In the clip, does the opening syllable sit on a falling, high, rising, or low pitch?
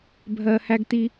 low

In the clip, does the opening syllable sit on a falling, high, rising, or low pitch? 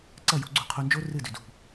falling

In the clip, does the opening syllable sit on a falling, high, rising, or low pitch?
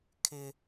low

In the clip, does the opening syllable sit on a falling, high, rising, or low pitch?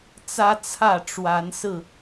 high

